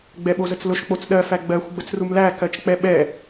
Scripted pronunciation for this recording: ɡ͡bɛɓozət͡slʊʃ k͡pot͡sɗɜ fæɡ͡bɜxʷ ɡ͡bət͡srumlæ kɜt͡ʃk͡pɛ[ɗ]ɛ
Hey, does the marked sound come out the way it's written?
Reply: no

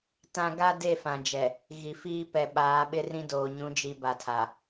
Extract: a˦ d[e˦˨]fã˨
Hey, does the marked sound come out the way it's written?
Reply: yes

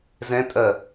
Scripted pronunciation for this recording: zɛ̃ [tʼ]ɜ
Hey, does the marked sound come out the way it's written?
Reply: yes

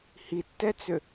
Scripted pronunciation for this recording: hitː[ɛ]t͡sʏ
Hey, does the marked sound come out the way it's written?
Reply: yes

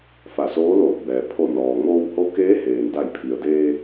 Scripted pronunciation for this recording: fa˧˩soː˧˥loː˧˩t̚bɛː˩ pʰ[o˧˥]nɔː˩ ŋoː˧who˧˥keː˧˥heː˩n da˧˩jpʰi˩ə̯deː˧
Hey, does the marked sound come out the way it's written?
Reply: no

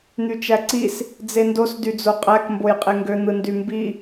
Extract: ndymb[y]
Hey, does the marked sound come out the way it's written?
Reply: no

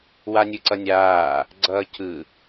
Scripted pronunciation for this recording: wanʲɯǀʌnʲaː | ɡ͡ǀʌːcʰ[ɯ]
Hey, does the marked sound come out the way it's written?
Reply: yes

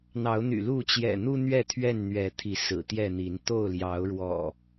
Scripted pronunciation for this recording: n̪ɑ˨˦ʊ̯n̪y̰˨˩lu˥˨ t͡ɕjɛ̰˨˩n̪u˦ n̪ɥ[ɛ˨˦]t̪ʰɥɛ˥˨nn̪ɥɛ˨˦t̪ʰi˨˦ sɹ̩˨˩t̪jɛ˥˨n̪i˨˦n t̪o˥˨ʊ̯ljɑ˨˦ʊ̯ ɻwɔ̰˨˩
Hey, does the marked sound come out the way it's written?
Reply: no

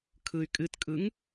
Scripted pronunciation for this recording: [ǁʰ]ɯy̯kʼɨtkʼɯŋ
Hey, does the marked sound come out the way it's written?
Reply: no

